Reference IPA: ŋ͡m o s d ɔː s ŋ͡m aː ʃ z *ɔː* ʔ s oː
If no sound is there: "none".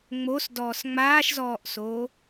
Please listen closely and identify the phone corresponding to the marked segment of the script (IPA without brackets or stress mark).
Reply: ɔː